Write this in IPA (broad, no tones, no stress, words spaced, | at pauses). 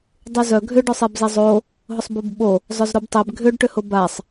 dˤyzœ ɡʱʏɖʊ sˤebzezˤo | ɦʊsˤbobɓo | zˤœzɾobtˤeb ɡʱʏɖʈʏhʊ basˤ